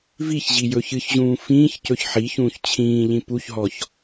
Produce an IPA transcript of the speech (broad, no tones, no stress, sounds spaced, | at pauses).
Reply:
v i ç ʑ i j ɵ ç ɨ ç ʑ ũː f ĩː ç c ɵ ç ħ i ç ũː ç t͡ɕʰ ĩː ʎ ĩ p u ç ɦ ɔ ç